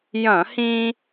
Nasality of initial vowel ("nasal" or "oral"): nasal